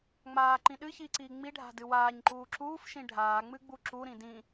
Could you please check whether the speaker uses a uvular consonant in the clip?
no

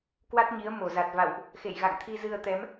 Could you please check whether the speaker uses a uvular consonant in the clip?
no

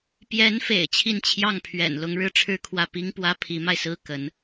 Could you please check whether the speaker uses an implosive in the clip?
no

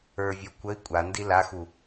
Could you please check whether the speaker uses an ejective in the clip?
yes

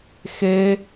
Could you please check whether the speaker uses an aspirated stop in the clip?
no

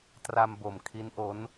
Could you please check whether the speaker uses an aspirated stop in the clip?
yes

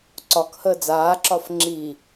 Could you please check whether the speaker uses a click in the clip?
yes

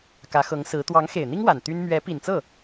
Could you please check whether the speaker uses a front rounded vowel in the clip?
yes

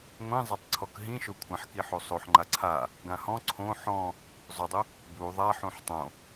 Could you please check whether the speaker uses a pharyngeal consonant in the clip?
yes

